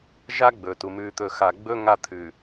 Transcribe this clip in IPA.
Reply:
ʒ a˦ ɡ͡b ɵː˨ t u˨ m ʉː˨ t̪ ɵː˨ x aː˨ ɡ͡b ɵ˦ ŋ a˦˨ t̪ʰ ʉ˨

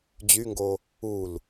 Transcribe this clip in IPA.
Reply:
d͡ʑ y ŋ ɡ o | u l

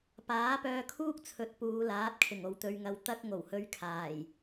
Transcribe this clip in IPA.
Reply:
p aː˨˥ p œː˧ kʰ uː˥ k̚ t͡sʰ ɵ˨˥ t̚ p uː˨˧ l aː˨˥ t̚ kʰ ɪ˨˩ ŋ o˨ w t̪ ɵ˧ ɥ ŋ ɐ˧ w t̪ ɐ˥ k̚ ŋ o˨˩ w h ɵ˧ ɥ kʰ aː˨˩ j

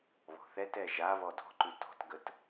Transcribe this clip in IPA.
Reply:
β ɔ̤ θ ɛ t ɛ ʒ a β ɔ d ɔ̤ ǃ ʉ t ɔ̤ t ɡ ə t

